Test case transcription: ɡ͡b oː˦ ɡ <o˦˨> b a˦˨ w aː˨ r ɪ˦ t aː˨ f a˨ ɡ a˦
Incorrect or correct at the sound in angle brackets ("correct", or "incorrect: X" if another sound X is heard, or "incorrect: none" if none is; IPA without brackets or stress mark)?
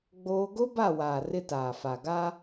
incorrect: o˦